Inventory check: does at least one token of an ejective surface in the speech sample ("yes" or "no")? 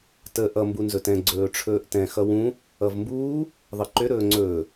no